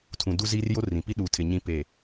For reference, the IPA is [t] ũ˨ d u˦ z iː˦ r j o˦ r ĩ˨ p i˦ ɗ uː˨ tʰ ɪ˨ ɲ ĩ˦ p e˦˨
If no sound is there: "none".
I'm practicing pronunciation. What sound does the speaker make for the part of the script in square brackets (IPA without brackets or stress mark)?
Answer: tʰ